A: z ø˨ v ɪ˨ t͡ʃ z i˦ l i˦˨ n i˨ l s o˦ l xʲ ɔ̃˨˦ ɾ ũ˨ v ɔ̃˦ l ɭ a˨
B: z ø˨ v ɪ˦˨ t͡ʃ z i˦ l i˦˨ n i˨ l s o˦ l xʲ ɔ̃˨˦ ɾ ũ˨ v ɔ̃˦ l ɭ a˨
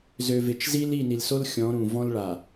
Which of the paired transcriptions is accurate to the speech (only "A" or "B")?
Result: A